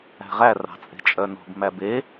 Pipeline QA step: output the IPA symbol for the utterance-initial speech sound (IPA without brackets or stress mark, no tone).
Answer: æ̤